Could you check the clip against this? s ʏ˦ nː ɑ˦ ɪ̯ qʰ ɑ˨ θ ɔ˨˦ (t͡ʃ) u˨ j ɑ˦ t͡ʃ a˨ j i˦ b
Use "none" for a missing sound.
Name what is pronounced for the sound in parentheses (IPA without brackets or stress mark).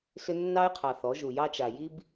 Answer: ʒ